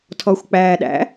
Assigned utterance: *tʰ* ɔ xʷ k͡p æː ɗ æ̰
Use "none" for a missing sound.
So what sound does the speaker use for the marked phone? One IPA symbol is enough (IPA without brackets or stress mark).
tʰ